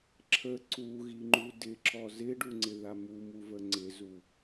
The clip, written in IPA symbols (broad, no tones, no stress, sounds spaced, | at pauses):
ǁʰ ə ǀ u ɣ i ŋ͡ǃ u d ɪ ǁ ɔ z ɪ ɖ u ŋ͡ǀ ɪ ð a m u m u v ə ŋ͡ǀ ɪ z u